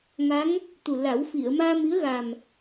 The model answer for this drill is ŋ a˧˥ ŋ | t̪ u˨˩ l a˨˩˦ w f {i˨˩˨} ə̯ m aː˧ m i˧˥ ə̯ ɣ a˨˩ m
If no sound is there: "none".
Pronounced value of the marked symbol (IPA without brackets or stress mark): i˨˩˨